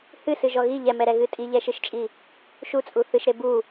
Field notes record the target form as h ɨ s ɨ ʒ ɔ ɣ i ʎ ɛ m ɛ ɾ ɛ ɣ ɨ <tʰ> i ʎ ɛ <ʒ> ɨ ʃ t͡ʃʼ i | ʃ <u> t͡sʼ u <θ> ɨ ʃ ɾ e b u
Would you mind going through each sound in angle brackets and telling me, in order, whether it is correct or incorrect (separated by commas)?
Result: incorrect, incorrect, correct, correct